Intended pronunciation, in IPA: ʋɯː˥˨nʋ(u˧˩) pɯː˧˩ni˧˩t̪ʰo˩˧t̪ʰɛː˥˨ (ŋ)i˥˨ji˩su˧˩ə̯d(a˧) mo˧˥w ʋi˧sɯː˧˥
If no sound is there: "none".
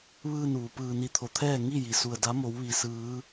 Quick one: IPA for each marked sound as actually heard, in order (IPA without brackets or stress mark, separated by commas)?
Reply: u˩, ŋ, a˧˥